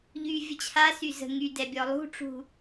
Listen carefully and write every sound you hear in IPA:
ʎ y vʲ ə t͡ɕʰ a s y z ə̤ ŋ y d ɛ bʲ ɔ lˠ ṳ ʈ͡ʂ ṳ

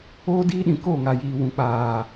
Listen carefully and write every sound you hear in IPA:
oː˦ d iː˦ ɗ ĩ˨ k o˦˨ ŋ a˨ j iː˨ w ũ˨ k͡p aː˨

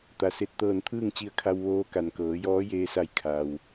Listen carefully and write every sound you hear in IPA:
t̪ a˩ s e˧˩ t̚ t̪ ɤː˧˩ n t̪ʰ ɯː˥˨ ŋ t͡ɕ i˧ ə̯ kʰ a˧ w ʋ oː˧ k a˩ n k ɤː˩˧ j ɔː˧˥ j eː˧ s a˧˩ j kʰ a˩ w

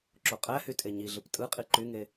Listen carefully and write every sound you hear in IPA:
ǁ o qʼ æ h y tʼ e ɲ i ɮ ɯ p tʼ ɯ qʼ i ǃ y ŋ e

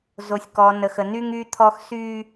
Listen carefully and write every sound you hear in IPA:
z o˨ sʲ k ɔ˨ n ə˨ x ə˨ n y˦ ŋ y˦ t̪ʰ ɔ˦ x s y˦

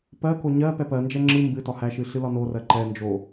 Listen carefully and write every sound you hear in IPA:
p ɜ k o ɲ ɜ p ɛ p ɜ n d͡ʒ ɛ ŋ͡ǁ ɨ m b ɨ t ɒ h æ ʃ ɨ ɬ ɨ l ɒ n o r ɜ ǃ ɛ n d͡ʒ o

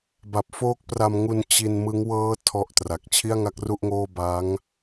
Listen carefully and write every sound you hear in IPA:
b a˨˩ p̚ f oː˦˥ k̚ p r a˧ m ŋ u˧ n t͡ɕ i˧ n m ɯ˦˥ ŋ w ɤː˦˥ tʰ ɔ˥˩ ʔ t r a˨˩ k̚ t͡ɕʰ i˥˩ a̯ ŋ a˥˩ k̚ r u˥˩ ʔ ŋ oː˥˩ b a˦˥ ŋ

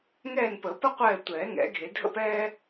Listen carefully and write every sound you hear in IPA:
ŋ ɛː˦˨ n p ə˨˩˦ p ə˥ qʷ ɛː˦˨ tʷ ɛː˨˩˦ ŋ ɛ̰˨˩˦ ɡʱ e˨˩˦ dʱ ə̰˥ p ɛː˥

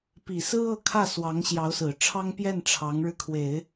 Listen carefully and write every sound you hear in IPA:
p i˨˩ s ɹ̩˥ ɤ˥˧ kʰ ä˥˩ s w ɑ˧˥ ŋ ɕ j ɑ˧˥ ʊ̯ s ɹ̩˨˩ ʈ͡ʂʰ ɑ˥ ŋ p j ɛ˥˩ n ʈ͡ʂʰ ɑ˧˥ ŋ ɻ ɻ̩˧ kʰ w e˨˩˦ ɪ̯

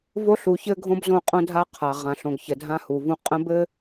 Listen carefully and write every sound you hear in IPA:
v o˦ ɬ u˨ ç ɘ˦ ɡʱ õ˦ b z õ˦˨ qʼ õ˦ dʱ a˦ qʰ a˨ ʁ ã˨ ɬ õ˨ ɡ ç ə˨ dʱ ã˦ h u˨ v ũ˦ qʼ ə̃˦ b ɘ˦

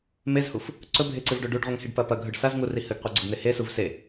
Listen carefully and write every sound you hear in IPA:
m e z h u f | ǀ ɵ bʱ e ǀ ɨ v ɖ o ɖ u ɖ ʁʷ ɐ ŋ h i ɖ p ɐ p ɐ ɡʱ ɵ ɖ s a z ŋ u r i h ɨ ɡ qʷ e ɡ͡ǀ ɵ ɡ n̪ e h e s u v s e

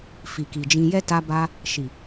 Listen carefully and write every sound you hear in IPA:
f i˨ k i˨ d͡ʒ ĩ˧ j ɛ˦ t a˧ b a˧ | ʃ i˨

